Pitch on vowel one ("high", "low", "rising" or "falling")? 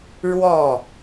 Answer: falling